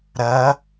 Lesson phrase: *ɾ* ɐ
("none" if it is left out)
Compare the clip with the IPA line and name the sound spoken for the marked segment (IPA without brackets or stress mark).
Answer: ɾ